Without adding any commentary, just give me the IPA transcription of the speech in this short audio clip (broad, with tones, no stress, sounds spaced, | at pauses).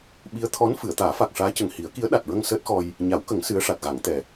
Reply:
ɓ i˧˥ ə̯ t̪ʰ ɔ˧˥ n f ɨ˨˩˨ ə̯ t̪ aː˨˩˦ f a˨˩ k̚ ʂ aː˧˥ c ə˨˩ ŋ h i˨˩˦ ə̯ k i˧˥ ə̯ ɗ a˨˩ t̚ ɹ ə˧ ŋ s əː˦˥ t̚ x ɔ˧ j | ɲ a˨˩˦ w k ə˨˩˦ ŋ s ɨ˧˥ ə̯ ʂ a˨˩ t̚ ɣ a˨˩˦ ŋ t̪ ɛ˨˩